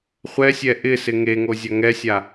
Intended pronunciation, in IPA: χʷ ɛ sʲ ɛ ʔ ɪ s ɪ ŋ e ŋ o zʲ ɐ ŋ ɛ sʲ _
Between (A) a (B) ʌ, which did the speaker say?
A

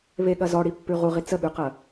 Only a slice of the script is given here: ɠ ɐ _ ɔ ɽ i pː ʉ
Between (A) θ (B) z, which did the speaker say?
B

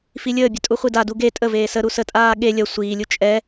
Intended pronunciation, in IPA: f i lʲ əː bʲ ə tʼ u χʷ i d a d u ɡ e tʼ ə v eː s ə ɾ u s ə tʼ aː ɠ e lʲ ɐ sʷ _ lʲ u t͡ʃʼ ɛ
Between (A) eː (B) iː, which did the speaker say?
B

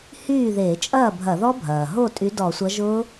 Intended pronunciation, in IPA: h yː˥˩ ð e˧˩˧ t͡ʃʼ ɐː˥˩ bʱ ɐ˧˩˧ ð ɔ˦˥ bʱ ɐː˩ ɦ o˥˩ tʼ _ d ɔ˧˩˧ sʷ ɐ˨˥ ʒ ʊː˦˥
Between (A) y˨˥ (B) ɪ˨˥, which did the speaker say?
A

